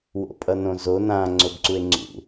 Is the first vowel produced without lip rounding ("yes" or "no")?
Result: no